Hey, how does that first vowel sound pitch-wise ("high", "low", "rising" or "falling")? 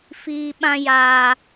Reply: low